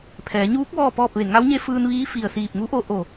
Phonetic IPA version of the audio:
pʰ ɛː˩˧ ɲ uː˧˥ k̚ ʋ ɔː˥˨ p ɔː˥˨ p̚ ʋ e˧˩ ŋ a˧˥ w ɲ e˧˥ f ɯː˧ n ʋ iː˧˥ f i˧˩ ə̯ s iː˧˩ p̚ ŋ u˧˥ ʔ o˧ ʔ o˧˩

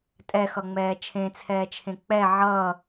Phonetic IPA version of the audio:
tʼ ɛ x ʌ ŋ͡m ɛː t͡ʃʰ ẽ t͡sʰ ɛː t͡ʃʰ ẽ k͡p ɛ ʕ ʌ

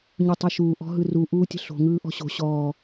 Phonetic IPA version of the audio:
ɲ u tˤ ɯ ʃ uː ʔ ɔ̤ ɦ ɯ r u ʔ uː tʲ ə̤ ɬ o̤ ŋ ɯː ʔ ɔ̤ ɕ o̤ ɕ ɔː

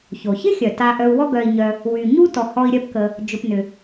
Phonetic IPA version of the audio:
ç o˩ ç ɪ˥ xʲ œ˩ t a˨ ʔ œ˨ u̯ w ɔ˦ ɡ œ˨ i̯ ɲ œ˨ | w y˩ ɲ u˦ t ɔ˨ h ɔ˦ i̯ ɾʲ œ˦ p k ə˨ | d͡ʒ ʊ˨ p n ʏ˩

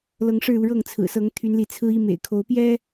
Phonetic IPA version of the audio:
l ɤ˨˦ ŋ ʂ ɻ̩˥˨ u˥˨ ɻ ɤ˥˨ ŋ t͡sʰ ɹ̩˨˩ s ɤ˨˦ ŋ t̪ʰ y˨˦ n l i˨˦ t͡sʰ ɹ̩˦ i˦ m ḛ˨˩ ɪ̯ kʰ o˨˦ ʊ̯ p j ɛ˦

